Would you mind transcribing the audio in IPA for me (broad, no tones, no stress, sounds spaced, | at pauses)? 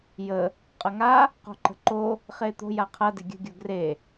j ə | qʼ ɐ ŋ a | q o̤ ǃ ə̤ ǃ o | χ eː t̪ o̤ j a qʰ ɐ d ɪ ɡʲ ə̤ ɡʲ o ɡ r e